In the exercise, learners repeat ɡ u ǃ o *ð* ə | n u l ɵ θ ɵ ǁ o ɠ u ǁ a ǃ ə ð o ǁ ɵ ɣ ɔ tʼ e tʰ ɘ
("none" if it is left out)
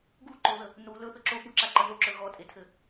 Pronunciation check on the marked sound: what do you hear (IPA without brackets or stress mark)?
ð